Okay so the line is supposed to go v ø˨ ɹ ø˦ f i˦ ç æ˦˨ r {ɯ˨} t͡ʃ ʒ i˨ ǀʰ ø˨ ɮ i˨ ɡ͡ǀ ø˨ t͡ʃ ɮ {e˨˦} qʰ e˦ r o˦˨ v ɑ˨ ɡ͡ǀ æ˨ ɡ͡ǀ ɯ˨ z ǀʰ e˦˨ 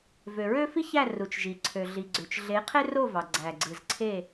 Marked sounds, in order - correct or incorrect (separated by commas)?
incorrect, correct